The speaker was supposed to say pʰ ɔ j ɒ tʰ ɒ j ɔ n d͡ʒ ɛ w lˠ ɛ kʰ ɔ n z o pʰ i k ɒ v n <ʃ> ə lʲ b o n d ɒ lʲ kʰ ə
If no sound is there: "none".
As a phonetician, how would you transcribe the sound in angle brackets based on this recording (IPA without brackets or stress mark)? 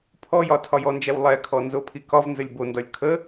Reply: z